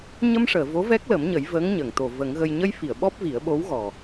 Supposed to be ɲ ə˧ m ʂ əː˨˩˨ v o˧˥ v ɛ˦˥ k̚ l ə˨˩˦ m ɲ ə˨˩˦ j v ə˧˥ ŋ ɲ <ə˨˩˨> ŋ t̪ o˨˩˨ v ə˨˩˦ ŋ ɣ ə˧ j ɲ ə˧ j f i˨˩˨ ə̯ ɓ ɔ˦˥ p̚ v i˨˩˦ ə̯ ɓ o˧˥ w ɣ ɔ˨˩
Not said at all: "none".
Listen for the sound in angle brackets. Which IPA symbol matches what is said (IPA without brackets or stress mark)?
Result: ə˨˩˨